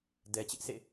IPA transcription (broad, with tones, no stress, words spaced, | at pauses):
dɛ˨t͡ɕɪ˦ʔsʰḛ˦˨